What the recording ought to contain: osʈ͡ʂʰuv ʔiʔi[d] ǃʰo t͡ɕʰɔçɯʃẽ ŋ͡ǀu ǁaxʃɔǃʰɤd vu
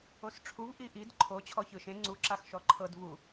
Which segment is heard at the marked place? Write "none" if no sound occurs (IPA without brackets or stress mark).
d